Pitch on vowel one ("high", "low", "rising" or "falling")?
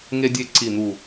high